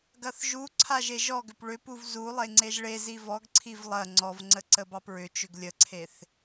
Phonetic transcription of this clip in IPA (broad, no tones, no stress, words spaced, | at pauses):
ɡɐθʒuǀʰa ʒeʒɔɡʏp ɭʏpuv zulˠe ŋ͡ǀeʒɭezi vɔɡǀʰiv lˠɐ ŋ͡ǀɔvŋ͡ǀə ǀəbɑpɹʏt͡ʃʏɡ lʲəǀʰeθ